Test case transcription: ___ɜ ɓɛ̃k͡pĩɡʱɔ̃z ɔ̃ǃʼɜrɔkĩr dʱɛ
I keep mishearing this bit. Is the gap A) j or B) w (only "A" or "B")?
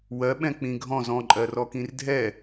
B